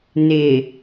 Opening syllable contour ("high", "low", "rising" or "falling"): low